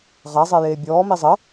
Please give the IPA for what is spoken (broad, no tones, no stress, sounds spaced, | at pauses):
ʁ a zˤ e j eː bʲ ɔː m i zˤ ə